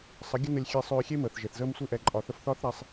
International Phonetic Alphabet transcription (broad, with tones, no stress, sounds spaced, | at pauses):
sˤ ə˨˦ ɡʲ ə˦ n ə˧ lʲ xʲ e˧ sˤ øː˧ xʲ e˦ m əː˨ θ ʒ e˨ θ z əː˦ m sʷ i˦ ʔ ɛ˧ ǃʼ ɒ˨ θ ə˧ f θ ɒː˦ θ ɾ ɛ˧ sˤ